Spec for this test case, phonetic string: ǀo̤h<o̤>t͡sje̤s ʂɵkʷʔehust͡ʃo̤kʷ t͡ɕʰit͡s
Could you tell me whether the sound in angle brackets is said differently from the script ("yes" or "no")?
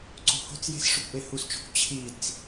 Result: no